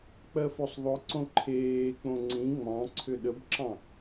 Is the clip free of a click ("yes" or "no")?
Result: no